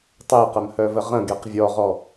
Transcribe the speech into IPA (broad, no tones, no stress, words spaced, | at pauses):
tˤeqəmhœvə ʁə̃ɡeq vʲɔʁɔ